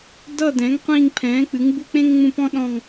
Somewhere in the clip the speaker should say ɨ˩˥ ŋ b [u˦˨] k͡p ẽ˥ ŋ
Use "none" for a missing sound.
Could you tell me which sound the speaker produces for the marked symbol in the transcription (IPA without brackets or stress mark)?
u˦˨